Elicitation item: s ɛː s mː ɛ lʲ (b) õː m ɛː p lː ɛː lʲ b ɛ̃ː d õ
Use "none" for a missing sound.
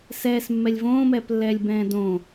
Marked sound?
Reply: v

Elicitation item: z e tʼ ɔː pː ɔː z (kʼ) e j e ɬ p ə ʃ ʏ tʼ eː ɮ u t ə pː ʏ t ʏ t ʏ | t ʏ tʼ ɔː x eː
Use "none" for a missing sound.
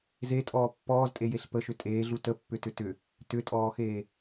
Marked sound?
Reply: tʼ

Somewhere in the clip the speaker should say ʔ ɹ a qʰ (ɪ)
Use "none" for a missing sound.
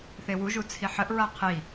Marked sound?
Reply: i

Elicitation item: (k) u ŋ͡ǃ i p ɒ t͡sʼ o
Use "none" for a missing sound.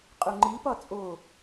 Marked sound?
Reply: qʼ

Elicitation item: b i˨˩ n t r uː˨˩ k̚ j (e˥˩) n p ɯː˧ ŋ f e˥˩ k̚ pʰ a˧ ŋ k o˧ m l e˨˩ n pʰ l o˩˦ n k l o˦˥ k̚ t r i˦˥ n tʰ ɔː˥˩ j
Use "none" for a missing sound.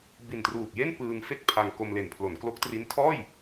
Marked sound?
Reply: e˥˩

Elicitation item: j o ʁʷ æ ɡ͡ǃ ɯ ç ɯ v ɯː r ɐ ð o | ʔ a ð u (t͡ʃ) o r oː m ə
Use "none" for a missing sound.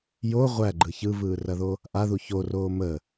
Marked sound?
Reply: ç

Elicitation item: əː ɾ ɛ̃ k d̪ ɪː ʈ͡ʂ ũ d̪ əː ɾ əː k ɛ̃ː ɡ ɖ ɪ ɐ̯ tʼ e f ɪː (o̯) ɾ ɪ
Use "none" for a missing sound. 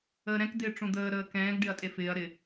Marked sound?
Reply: ɐ̯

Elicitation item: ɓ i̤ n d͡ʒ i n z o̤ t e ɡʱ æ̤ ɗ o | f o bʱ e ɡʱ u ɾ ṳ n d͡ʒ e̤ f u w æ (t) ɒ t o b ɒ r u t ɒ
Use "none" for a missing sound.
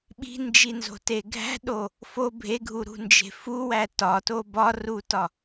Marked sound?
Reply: t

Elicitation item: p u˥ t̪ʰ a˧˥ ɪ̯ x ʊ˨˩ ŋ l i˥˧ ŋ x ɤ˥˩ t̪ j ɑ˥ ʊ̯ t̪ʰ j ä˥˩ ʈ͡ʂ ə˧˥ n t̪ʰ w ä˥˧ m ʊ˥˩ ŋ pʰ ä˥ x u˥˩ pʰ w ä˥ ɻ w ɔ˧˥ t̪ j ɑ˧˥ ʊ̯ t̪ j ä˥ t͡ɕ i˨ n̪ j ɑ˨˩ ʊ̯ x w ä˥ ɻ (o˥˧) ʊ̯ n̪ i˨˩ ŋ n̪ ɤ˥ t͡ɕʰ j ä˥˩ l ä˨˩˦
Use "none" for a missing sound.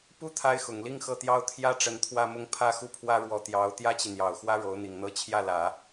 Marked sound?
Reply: o˧˥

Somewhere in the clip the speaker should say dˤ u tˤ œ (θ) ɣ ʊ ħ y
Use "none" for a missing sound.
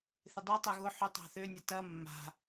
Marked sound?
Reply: none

